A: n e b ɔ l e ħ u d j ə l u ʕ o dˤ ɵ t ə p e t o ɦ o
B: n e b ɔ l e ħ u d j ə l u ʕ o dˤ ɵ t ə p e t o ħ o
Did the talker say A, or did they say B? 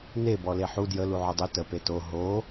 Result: A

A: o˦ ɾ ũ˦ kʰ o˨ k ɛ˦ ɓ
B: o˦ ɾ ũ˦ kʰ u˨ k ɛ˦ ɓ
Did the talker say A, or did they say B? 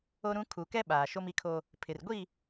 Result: B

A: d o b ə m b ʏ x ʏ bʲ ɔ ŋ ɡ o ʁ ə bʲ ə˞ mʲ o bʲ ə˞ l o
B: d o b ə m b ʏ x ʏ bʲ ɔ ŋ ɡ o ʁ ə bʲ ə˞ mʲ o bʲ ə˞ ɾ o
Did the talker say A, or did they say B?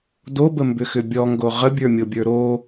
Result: B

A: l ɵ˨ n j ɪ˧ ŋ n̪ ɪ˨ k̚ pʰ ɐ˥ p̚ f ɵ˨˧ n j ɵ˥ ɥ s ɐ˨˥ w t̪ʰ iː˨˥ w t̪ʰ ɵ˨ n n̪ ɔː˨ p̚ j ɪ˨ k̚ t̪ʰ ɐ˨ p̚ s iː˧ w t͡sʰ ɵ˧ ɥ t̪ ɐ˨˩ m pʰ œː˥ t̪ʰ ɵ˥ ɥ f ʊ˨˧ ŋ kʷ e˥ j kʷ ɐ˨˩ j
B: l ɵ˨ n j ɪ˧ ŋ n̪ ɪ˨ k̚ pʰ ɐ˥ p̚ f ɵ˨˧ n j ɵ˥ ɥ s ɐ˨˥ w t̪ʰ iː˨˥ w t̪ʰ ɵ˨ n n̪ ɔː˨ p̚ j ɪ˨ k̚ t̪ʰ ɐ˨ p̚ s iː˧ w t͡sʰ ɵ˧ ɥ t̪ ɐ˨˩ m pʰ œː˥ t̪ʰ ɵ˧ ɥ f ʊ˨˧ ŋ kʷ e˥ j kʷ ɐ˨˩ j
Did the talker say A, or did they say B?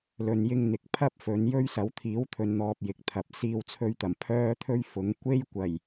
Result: A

